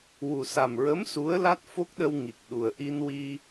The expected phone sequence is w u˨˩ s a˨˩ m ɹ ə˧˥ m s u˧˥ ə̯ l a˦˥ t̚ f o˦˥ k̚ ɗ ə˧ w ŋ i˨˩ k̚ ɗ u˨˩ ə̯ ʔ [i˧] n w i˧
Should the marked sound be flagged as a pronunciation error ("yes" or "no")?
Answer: no